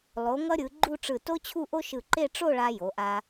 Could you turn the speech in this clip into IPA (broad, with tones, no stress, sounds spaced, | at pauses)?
lˠ o˩˧ ŋ ʌ˧ ɾʲ ɯ˩˧ ɡ͡ǃ u˥˧ ʈ͡ʂ ɯ˧˩ t o˥ t͡ɕʰ u˥˧ ʔ o˥ ʃ ɯ˧˩ ǃ e˥˧ ʈ͡ʂ o˥˧ ɭ a˧ j o˩˧ ʔ a˧